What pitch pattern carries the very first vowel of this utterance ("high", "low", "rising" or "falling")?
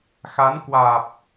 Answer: rising